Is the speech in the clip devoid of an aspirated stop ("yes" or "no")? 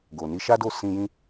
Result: yes